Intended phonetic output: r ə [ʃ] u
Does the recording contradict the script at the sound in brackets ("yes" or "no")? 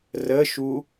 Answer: no